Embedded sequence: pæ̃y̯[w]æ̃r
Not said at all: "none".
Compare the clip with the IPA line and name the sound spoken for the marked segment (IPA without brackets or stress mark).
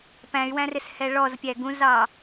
w